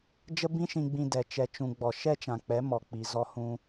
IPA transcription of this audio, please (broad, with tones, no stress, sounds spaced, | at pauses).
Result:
d͡ʒ ə˦ b ĩ˦ ʃ ĩ˧ ɡ͡b ĩ˧ d ɛ˨ t͡ʃ ɛ˨ t͡ʃ ũ˨ ɡ͡b ɔ˨ ʃ ɛ˦ t͡ʃ ã˨ k͡p ɛ˨˦ m ɔ˨ k͡p i˨ z ɔ˧ h ũ˧